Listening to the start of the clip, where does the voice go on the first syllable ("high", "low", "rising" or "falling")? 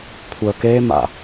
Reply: low